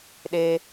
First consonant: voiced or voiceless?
voiced